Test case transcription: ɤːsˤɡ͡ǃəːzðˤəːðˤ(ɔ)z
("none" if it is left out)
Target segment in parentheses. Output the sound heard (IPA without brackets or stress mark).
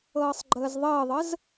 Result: ə